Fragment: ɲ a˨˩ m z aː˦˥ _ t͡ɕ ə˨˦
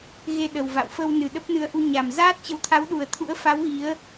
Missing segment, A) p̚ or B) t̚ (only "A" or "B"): B